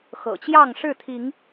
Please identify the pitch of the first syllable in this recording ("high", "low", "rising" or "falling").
low